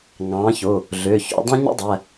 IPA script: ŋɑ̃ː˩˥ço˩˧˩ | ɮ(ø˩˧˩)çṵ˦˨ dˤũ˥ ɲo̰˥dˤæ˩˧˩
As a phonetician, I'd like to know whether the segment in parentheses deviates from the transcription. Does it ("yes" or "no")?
no